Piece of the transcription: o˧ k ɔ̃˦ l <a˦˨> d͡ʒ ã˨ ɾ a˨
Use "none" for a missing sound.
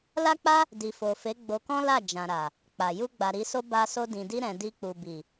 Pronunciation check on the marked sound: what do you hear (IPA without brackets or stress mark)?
a˦˨